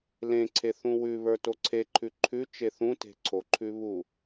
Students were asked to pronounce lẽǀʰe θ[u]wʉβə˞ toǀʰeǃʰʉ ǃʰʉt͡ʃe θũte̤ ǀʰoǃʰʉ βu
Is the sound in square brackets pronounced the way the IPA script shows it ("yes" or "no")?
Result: no